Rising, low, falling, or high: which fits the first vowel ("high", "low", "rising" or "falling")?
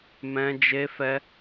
high